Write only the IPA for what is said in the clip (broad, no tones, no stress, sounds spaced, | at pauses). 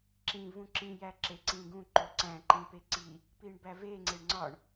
ǁ ĩ v ũ ǁ ĩ j æ ǁ e ǀ ĩ ɡ ũ ǃ o ǀ æ̃ ǃ ĩ p e ǀ i | p i ɳ b æ v e ŋ͡ǀ e ɳ ŋ͡ǀ ɒ ɳ